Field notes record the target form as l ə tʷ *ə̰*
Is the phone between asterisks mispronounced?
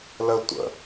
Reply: no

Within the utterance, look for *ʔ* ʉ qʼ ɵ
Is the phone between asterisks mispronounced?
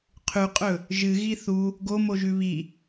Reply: yes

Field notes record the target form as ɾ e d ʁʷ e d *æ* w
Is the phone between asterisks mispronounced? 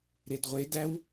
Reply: no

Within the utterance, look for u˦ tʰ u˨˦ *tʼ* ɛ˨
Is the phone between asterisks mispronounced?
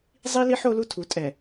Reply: no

